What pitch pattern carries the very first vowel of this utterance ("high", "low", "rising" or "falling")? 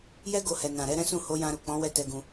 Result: high